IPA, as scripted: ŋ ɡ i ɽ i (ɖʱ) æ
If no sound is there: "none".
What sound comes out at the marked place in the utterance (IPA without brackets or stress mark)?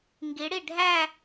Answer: ɖʱ